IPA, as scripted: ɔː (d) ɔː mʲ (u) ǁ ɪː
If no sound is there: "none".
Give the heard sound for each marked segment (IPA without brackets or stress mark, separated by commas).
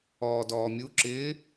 d, u